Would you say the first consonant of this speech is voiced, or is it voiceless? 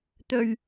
voiceless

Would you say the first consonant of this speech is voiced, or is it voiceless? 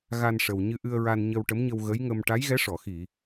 voiced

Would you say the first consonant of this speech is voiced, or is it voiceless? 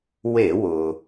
voiced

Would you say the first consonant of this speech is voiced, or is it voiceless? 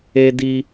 voiced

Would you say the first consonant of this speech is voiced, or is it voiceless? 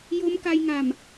voiced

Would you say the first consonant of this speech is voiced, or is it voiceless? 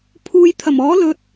voiceless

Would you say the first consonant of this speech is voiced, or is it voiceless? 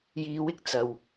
voiced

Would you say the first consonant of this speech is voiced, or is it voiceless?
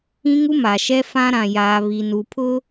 voiced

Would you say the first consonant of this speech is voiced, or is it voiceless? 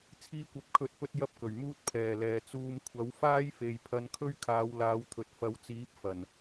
voiceless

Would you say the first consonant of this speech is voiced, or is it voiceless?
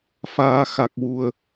voiceless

